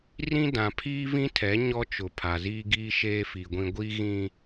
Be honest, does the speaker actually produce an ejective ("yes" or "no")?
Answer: no